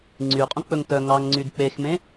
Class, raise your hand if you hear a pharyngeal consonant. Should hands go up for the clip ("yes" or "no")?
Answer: no